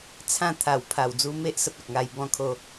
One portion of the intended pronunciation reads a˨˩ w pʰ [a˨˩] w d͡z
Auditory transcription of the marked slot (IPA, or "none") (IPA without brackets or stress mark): a˨˩